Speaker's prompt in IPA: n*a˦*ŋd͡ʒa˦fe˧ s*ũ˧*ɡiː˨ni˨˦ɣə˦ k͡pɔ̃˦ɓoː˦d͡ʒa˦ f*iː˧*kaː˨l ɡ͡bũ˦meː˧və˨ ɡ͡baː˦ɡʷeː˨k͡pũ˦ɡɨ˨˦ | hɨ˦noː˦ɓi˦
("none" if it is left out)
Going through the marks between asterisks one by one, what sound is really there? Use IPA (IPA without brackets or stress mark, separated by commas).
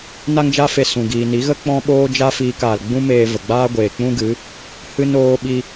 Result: a˦, ũ˨, iː˧